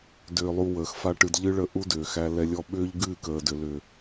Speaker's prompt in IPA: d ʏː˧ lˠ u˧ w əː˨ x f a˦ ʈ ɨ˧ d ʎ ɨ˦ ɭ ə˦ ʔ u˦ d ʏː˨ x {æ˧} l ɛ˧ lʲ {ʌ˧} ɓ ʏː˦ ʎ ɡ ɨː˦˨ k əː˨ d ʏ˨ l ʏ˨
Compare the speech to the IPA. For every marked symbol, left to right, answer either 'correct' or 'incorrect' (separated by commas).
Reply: correct, incorrect